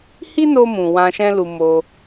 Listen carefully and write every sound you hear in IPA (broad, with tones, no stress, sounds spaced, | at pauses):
h i˦ n o˧ m ũ˨ w ã˧ ʃ ɛ̃˦ l u˧ m o˧